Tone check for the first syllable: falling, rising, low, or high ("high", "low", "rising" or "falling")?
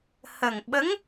low